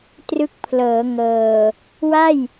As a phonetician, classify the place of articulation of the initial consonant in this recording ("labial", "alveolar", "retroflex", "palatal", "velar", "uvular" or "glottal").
alveolar